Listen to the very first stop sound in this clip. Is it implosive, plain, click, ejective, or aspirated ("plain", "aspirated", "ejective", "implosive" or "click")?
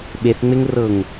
implosive